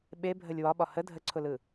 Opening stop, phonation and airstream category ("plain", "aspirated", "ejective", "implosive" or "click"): implosive